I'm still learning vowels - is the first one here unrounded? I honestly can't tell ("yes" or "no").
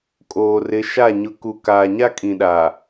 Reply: no